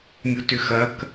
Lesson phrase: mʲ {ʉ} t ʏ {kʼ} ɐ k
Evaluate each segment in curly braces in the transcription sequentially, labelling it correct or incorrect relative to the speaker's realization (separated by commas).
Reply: incorrect, incorrect